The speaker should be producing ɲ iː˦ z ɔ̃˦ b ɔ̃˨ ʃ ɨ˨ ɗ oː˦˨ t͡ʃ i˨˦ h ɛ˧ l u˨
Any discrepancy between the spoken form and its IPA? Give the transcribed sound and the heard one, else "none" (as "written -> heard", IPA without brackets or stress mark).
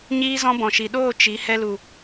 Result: ɨ˨ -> i˨